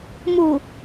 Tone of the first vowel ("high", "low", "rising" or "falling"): low